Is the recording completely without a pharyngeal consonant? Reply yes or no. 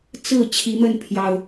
yes